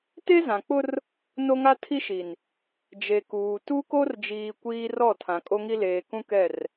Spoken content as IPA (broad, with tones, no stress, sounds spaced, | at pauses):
t e˦ z ã˨ k͡p ʊ˦ r | n o˦ ŋ a˦ tʰ i˦ ʃ i˨ n | d͡ʒ e˨ k uː˨ t u˦ k o˦ r d͡ʒ iː˨ kʷ iː˦ r ɔ˦˨ tʰ ã˨ kʼ o˦ ŋ i˦ l eː˨ k ũ˦ k ɛ˦˨ r